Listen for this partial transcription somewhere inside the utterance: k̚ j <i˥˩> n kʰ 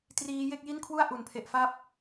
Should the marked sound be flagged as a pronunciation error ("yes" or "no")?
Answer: no